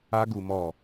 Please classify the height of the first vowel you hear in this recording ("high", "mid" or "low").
low